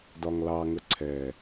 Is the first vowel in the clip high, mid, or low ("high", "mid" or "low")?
low